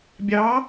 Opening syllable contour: rising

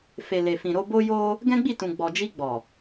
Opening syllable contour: low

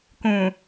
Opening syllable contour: low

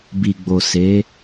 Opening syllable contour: low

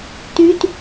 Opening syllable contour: high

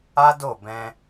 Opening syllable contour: high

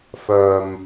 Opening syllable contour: low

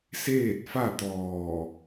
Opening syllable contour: falling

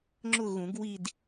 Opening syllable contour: falling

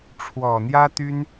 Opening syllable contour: low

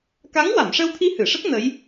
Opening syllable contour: rising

